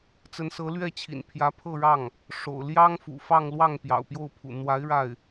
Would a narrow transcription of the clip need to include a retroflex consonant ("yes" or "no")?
yes